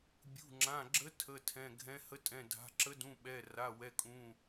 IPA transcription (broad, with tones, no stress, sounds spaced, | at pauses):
bʲ ṳ˩˧˩ ŋ͡ǁ ã˩˧˩ ɡ͡ǁ ə˧˥ tʰ ə˩˧˩ tʰ ɛ̃˩˧˩ ɡʱ ɛ̃˧˥ h ə˧˥ tʼ ɛ̃˩˧˩ dʱ a̤˩˧˩ ǁ ə˧˥ d ũ˩˧˩ ɓ ɛ˩˧˩ r a˩˧˩ w ɛ˩˧˩ kʼ ũ˩˧˩